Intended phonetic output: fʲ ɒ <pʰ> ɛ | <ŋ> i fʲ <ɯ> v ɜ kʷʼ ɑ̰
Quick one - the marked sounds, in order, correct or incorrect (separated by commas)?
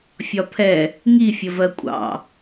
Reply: correct, correct, incorrect